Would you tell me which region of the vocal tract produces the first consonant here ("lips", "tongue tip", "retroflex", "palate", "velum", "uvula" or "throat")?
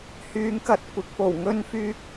throat